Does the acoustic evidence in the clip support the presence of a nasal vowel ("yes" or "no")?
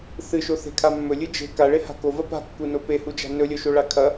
no